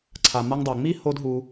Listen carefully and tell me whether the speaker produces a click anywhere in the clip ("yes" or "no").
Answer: yes